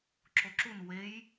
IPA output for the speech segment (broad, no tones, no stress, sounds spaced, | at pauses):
ǁ o ǁ u n w e j